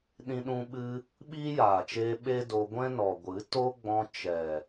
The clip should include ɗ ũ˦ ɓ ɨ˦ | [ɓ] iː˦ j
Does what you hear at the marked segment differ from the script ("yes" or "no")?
no